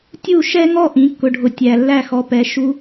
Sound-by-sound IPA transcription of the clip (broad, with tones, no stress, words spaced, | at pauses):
tʲu˥˩ʃɛ˥ŋɔ˥ ʔĩ˩˥kːʊ˨ɖʱʊ˨ tʲæ˨ lːæ˥˩xɔ˨pɛ˩˥ ʃu˥